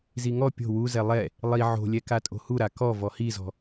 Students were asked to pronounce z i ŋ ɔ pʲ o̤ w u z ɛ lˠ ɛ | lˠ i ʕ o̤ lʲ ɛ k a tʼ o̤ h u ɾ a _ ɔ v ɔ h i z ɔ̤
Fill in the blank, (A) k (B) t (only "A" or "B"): A